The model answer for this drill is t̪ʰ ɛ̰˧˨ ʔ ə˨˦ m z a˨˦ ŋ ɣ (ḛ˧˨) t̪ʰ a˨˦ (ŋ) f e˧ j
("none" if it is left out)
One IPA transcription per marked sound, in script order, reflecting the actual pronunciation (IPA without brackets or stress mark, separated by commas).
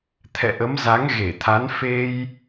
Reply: e˧˩, n